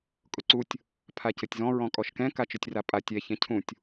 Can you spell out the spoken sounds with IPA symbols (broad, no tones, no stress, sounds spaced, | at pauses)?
kʼ ʊ ǀ u tʲ | pʰ a c ɘ tʲ z ɔ̃ ɹ ɔ̃ kʼ ɔ ʃ k ɛ̃ k a t͡ʃ ʊ tʲ r a pʼ a tʲ ɛ ç ɛ̃ cʰ ũ tʲ